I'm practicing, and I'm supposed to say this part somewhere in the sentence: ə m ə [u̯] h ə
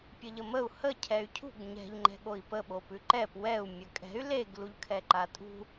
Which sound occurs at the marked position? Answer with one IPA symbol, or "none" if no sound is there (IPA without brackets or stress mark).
u̯